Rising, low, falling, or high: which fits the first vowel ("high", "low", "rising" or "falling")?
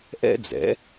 high